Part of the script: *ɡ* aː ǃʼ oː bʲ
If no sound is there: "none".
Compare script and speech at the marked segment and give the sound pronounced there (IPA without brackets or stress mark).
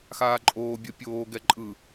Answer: x